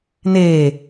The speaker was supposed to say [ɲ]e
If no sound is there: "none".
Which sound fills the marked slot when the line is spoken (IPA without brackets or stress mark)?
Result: n